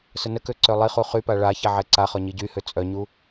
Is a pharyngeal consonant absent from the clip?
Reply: no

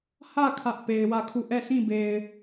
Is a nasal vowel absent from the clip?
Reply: no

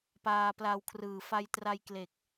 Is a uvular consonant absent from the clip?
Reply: yes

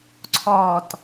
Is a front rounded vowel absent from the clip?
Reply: yes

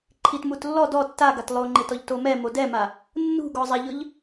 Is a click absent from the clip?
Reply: no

